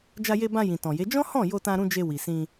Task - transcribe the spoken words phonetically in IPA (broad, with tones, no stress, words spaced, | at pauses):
d͡ʒa˧je˧bã˧ jĩ˨tɔ̃˨je˨˦ d͡ʒɔ̃˦hɔ̃˦˨ jo˧tã˧ɾũ˧ d͡ʒe˧wi˨sĩ˧